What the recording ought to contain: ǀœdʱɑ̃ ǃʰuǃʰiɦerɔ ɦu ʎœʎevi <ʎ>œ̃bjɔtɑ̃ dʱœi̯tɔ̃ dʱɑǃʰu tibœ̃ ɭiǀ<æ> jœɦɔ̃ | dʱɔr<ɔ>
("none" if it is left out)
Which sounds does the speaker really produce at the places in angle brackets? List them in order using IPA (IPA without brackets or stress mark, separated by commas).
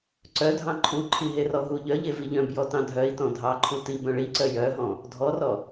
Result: ʎ, œ, ɔ